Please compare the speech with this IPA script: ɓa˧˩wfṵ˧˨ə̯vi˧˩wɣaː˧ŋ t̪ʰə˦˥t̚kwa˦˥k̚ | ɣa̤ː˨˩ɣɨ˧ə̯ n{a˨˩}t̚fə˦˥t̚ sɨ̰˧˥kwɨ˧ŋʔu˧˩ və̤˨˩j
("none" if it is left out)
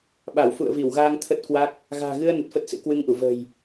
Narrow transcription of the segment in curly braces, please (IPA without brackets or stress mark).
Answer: ə˨˩